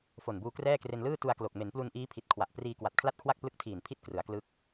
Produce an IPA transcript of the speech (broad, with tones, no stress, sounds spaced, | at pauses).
f o˨˩ n b uː˧ k r ɛː˥˩ k r e˧ n l ɯː˥˩ t u˧ a̯ k l o˨˩ k̚ m e˩˦ n p l u˧ n ʔ iː˦˥ pʰ i˨˩ t̚ kʰ w a˨˩ ʔ p r iː˧ k w a˨˩ t̚ kʰ l a˥˩ t̚ kʰ w a˥˩ k̚ p l ɯ˦˥ k̚ tʰ iː˨˩ n pʰ i˥˩ t̚ k r ɯ˩˦ a̯ k l ɯ˦˥ k̚